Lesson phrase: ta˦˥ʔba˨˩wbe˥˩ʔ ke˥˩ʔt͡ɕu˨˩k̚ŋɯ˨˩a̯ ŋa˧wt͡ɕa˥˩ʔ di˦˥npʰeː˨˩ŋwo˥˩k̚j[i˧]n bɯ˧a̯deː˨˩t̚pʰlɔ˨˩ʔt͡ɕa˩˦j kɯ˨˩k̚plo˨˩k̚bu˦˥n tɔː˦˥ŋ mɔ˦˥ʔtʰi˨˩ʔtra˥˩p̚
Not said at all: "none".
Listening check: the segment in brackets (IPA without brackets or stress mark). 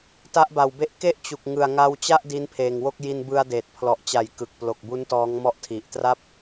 i˧